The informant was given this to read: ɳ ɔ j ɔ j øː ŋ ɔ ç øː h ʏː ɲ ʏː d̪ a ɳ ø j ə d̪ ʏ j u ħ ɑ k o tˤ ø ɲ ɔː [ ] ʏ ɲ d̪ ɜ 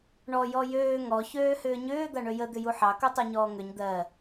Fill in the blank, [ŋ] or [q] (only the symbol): ŋ